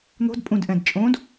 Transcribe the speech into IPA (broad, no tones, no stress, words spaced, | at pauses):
n̪o̤dpʼũdʔɛ̃dt͡ʃʼõːd